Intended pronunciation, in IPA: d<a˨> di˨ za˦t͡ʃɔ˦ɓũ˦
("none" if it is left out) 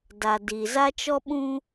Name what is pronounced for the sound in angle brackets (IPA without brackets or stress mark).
a˨